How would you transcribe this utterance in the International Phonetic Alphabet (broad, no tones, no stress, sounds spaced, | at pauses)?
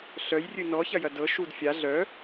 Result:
ɬ œ j rʲ ɨ n ɔ ç ɐ j ɐ d ɤ ʃ u d fʲ a ɮ œ